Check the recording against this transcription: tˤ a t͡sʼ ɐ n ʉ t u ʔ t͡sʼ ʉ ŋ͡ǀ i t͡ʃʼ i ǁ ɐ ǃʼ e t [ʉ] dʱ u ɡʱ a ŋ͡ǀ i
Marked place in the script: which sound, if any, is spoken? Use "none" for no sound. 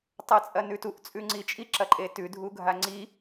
ʉ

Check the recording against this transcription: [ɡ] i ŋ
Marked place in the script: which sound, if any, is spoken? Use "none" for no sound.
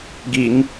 ɡ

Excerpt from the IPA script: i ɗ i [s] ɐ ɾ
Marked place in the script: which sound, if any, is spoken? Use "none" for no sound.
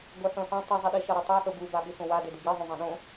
ʃ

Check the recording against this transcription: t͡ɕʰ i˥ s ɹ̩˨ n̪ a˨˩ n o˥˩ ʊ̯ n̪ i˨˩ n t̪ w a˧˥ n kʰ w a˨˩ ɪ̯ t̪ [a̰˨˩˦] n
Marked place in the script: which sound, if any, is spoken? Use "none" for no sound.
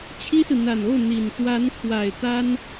a˥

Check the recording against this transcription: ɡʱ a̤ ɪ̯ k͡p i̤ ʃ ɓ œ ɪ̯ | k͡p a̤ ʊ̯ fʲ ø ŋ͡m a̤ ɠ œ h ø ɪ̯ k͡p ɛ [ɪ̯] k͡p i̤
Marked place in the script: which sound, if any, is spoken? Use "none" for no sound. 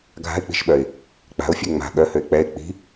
ɪ̯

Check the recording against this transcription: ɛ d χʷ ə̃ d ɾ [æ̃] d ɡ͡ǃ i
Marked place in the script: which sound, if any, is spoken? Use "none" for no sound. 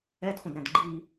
æ̃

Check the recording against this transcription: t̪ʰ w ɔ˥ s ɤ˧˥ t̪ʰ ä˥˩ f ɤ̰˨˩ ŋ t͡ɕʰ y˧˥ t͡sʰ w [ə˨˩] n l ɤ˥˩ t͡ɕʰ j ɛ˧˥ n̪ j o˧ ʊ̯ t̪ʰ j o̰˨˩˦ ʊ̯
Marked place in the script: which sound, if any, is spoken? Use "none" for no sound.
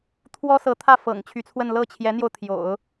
ə˥˧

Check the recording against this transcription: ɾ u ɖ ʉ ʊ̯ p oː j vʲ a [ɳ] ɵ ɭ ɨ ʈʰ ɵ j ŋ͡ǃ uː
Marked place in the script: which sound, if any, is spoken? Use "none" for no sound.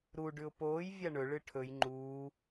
ɳ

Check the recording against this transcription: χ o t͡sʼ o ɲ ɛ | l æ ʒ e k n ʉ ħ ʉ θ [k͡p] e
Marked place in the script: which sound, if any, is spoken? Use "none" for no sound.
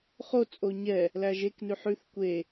kʷ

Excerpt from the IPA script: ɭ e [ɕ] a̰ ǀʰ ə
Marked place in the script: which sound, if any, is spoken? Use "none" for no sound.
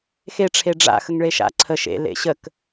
ʃ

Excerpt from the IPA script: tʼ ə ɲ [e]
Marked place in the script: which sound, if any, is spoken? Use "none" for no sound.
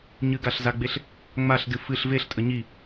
i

